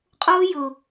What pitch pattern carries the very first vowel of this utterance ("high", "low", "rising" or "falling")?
high